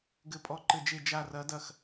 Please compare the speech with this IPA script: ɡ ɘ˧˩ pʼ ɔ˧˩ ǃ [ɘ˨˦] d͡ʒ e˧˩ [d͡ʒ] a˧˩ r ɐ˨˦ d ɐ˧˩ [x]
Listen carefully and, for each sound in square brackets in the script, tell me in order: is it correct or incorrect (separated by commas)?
incorrect, correct, correct